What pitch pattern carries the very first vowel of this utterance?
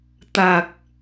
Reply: low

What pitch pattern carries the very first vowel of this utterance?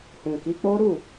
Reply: low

